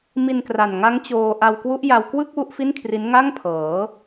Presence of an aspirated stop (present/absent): present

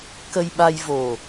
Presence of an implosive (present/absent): present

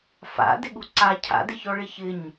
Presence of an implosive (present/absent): present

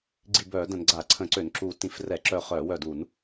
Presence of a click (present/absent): present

